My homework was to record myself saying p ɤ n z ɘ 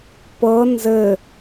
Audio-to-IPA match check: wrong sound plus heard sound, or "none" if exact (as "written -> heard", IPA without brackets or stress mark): none